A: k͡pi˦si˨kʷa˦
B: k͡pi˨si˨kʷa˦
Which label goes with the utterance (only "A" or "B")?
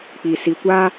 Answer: B